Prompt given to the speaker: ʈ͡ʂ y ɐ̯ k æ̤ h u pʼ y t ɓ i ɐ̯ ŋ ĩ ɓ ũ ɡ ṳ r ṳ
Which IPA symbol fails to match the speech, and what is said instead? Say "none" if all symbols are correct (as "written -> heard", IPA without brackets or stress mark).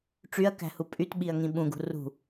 none